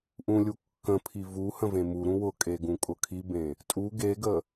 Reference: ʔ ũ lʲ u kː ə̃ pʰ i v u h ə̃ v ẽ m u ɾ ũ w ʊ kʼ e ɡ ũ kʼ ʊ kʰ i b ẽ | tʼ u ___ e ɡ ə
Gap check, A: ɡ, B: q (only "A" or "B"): A